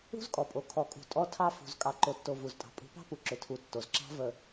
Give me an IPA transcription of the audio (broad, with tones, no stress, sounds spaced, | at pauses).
ṳ˦ z kʼ ɔ˨ pʼ o˨ kʰ ɔ˨ kʼ ṳ˨ tʼ ɔ˦ tʰ ɑ˦ f ṳ˨ z kʼ ɑ˨ ǃ o˨ tː o˨ v u˨ z tʼ ɑ̤˨ pʼ ṳ˨˦ p ɑ̤˦ p u˨ ǁ ʏ˨ tʰ u˨ tː o˨ z ǁ ɑ̤˦ v ə˨